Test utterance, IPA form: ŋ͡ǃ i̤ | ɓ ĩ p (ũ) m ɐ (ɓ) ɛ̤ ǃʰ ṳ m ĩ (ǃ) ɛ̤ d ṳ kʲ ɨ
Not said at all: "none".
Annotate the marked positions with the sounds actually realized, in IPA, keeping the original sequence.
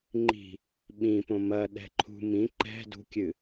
õ, ɗ, ǃ

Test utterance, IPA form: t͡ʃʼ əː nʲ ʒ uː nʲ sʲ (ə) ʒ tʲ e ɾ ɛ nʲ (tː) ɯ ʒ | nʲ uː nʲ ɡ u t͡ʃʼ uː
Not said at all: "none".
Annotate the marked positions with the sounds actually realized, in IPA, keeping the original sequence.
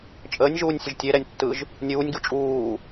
ə, tː

